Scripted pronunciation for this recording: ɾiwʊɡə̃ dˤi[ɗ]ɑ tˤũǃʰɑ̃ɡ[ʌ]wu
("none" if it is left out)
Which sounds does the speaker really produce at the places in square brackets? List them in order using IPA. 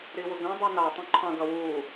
n, ʌ

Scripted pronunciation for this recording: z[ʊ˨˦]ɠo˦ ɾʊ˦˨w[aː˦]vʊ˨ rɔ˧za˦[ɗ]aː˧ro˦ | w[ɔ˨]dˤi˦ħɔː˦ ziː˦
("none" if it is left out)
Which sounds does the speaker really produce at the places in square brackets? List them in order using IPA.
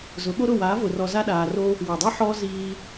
ʊ˨˦, aː˨˦, ɗ, ɔ˨

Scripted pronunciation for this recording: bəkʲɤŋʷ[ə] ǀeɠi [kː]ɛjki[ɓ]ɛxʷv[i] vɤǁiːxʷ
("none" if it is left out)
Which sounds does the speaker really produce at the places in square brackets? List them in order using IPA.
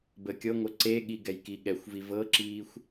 ə, ɡ, ɠ, i

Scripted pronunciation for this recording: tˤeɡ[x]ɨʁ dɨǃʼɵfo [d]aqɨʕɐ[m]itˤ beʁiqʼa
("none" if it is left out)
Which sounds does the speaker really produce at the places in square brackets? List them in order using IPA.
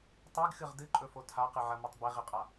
x, tʰ, m

